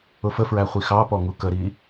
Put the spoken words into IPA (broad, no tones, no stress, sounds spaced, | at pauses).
ʊ f ə f ɹ æ χʷ i x ɑ p ɔ ŋ u k ə ɾ i